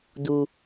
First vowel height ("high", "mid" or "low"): high